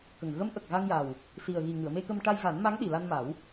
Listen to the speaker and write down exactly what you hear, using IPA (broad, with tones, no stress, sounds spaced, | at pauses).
k ə˨˩ ŋ ɣ ə˧˥ m ʔ ə˨˩ k̚ ɣ a˧ ŋ j a˨˩ w | s i˨˩ ə̯ ɣ i˨˩ ŋ ɨ˨˩˨ ə̯ m e˧ k ə˧ m ʈ a˧ j ɣ a˨˩˦ n m a˧˥ ŋ ɗ i˨˩ l a˧ n m a˨˩˦ w